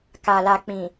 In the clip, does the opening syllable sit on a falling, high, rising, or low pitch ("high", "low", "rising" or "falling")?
low